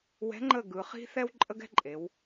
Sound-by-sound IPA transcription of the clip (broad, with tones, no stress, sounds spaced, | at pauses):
w ɛ̤˧˥ ŋ͡ǃ ə˦˨ ɡ ɯ˩˧ χ i̤˥ θ ɛ˥ w ǃʼ ə˥ ɡ ɛ̤˥ ǃʼ e˩˧ w